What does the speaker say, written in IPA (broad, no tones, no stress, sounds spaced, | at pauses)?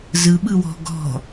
z ɯ ɓ ɯ w ɔ̤ ɡ ɔ̤